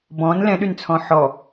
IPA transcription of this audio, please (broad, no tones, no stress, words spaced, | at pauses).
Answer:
bɔ̃n lɛ̃ɗynt͡sʰɔ̃ ħɔ